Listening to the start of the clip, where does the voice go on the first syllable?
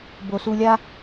low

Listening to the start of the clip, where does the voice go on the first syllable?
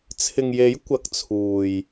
low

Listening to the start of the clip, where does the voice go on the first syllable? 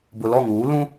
low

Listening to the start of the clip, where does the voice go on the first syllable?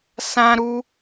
high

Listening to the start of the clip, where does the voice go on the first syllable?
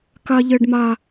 high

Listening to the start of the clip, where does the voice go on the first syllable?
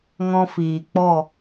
high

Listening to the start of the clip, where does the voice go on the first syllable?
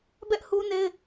high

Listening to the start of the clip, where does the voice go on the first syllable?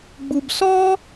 high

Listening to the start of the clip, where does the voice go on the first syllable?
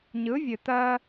rising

